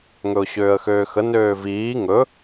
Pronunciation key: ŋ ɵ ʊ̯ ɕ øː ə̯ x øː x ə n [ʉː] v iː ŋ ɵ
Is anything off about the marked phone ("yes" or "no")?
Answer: yes